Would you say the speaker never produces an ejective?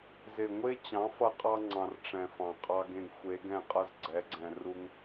no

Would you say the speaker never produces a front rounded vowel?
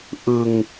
yes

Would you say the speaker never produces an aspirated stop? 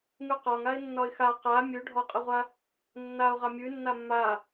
yes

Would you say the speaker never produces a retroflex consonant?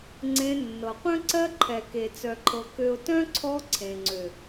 yes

